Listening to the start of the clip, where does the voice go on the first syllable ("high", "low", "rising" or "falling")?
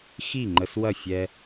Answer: falling